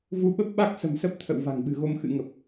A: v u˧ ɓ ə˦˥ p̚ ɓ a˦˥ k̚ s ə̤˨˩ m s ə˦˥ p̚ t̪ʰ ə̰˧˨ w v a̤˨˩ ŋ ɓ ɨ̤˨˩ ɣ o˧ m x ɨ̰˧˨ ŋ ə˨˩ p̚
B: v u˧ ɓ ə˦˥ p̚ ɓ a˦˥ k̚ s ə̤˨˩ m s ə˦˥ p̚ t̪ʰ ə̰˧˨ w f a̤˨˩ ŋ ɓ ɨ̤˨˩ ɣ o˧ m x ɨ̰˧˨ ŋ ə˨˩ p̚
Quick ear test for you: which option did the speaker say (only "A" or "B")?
A